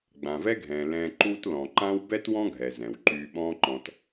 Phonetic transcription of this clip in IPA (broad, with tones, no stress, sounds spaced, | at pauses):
ɡ͡b ã˩ v ɛ˥ ɡʱ ɛ̃ː˩ l ɛ̃ː˧ ǃ uː˥ t l ɔ̃˩ ǃ ã˥ w b ɛ˥ t w ɔ̃˥ ɡʱ ɛ˩ z ɛ̃˩ w ǃ yː˧ ɓ ɔ̃ː˥ ǃ ɔ̃˧ t